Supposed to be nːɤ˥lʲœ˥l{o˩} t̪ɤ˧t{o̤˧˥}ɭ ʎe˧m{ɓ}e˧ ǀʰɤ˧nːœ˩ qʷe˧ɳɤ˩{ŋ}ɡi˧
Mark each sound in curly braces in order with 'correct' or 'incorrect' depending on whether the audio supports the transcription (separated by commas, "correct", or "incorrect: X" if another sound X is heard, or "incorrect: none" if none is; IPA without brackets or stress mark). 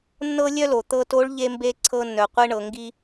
correct, incorrect: o˧˥, incorrect: b, correct